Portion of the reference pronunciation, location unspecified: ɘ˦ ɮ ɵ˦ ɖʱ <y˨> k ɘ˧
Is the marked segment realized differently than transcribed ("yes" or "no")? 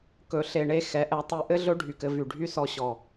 no